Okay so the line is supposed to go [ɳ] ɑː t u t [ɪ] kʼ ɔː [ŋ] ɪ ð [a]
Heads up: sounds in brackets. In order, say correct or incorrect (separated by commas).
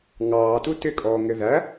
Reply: incorrect, correct, correct, incorrect